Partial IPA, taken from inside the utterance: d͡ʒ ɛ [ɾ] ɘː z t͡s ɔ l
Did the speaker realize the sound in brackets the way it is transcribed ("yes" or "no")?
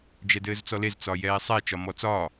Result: no